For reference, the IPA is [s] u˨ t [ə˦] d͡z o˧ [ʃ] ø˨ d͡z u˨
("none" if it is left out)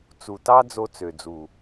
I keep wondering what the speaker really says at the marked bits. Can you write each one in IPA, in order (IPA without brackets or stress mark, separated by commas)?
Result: t͡s, ɑ˦, t͡s